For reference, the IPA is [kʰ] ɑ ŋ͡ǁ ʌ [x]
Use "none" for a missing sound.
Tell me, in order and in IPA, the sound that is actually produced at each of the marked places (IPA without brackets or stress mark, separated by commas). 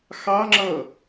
x, none